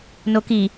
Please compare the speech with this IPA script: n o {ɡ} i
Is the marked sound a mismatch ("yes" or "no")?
yes